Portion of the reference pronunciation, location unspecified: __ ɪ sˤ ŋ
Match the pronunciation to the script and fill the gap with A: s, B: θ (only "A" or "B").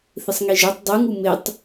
B